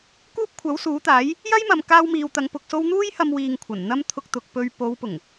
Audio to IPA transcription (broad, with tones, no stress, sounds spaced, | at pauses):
k uː˥ p̚ kʷʰ ɐ˨˥ w s uː˨˥ t̪ aː˨˥ j | j ɐ˥ j m ɐ˨ m k aː˥ w m iː˧ w t̪ ɐ˧ ŋ p ʊ˧ k̚ s o˥ w n̪ uː˥ j h ɐ˧ m w iː˨ ŋ kʷʰ ɐ˨˩ n n̪ ɐ˥ m t̪ʰ ʊ˧ k̚ t̪ ʊ˨ k̚ p ɵ˧ ɥ p o˨˧ w p ʊ˨˩ ŋ